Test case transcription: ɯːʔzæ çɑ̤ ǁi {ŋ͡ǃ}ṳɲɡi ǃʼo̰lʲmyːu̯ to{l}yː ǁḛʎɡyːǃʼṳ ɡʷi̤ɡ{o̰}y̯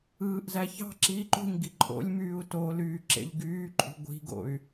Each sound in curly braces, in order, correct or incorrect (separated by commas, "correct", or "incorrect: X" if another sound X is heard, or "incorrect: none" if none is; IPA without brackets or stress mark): incorrect: ǃ, correct, correct